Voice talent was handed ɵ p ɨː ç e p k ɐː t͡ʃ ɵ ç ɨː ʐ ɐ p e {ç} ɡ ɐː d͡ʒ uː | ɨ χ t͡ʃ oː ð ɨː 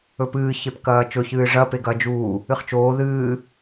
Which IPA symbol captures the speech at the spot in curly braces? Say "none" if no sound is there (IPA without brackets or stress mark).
none